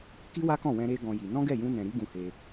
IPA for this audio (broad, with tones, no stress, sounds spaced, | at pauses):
k i˦ w a˦ k ɔ̃˦˨ w ɛ̃˧ ɾ e˧ ɡ ɔ̃˦ j i˧ n ɔ̃˦ ɡ ɛ˦˨ j ũ˧ n ɛ̃˨ ɾ i˨˦ ɡ ũ˧ h e˧